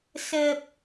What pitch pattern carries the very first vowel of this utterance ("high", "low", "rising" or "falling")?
low